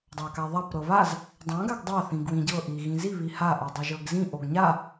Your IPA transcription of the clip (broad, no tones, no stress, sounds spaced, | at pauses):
dˤ a k a ðˤ a p ɾ ɤ β a z | dˤ ã ɡ a ɡ dˤ a θ ĩ ɡ w ĩ ɟ ɤ ʔ i ɣ ĩ z i β i h a ʔ o dˤ i ʒ ɤ ɡ z ĩ ʔ o ɡ ɲ a